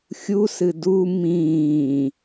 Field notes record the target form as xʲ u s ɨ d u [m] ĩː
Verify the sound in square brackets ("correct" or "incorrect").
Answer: correct